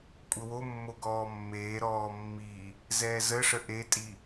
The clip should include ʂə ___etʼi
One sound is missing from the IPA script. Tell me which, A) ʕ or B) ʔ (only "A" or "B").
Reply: B